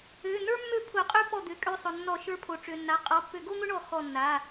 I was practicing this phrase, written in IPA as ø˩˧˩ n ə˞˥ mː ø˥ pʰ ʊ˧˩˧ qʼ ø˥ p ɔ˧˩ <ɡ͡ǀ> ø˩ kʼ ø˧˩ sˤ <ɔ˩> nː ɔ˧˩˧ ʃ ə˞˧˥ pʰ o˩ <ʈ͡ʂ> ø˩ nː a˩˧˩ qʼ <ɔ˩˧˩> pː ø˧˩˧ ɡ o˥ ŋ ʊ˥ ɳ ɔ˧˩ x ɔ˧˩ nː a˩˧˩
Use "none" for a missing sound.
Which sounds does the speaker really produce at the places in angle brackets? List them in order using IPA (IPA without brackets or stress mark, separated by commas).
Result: d̪, ʊ˩, ʈ͡ʂ, ɔ˩˧˩